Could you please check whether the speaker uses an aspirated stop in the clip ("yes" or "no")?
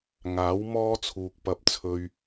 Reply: yes